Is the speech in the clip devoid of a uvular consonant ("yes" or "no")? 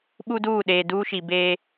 yes